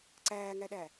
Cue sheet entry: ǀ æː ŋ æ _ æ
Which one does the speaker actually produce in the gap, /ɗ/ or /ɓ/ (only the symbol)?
ɗ